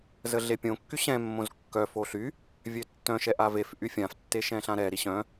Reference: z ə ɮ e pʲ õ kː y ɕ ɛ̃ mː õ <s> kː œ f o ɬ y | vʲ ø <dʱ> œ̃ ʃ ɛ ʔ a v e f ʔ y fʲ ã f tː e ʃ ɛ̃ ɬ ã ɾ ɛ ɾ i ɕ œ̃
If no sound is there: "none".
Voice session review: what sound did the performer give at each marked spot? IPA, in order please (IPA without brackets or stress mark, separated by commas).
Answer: z, tː